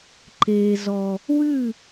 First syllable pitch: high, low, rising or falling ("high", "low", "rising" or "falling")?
low